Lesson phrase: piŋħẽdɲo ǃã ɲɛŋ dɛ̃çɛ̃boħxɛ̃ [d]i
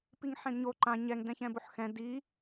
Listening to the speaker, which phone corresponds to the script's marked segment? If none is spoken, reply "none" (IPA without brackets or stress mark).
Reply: d